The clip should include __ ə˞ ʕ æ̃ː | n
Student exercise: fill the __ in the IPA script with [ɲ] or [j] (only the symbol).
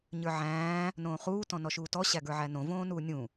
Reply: ɲ